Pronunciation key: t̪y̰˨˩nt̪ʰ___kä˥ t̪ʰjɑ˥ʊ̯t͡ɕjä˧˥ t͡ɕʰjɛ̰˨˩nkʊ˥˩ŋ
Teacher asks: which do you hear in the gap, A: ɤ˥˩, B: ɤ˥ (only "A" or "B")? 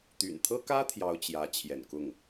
B